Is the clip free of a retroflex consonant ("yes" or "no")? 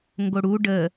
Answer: no